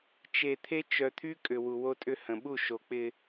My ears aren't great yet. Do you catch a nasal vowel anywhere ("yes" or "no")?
yes